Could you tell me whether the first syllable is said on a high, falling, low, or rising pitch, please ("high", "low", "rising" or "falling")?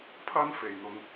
high